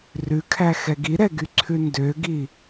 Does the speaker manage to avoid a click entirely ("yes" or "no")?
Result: no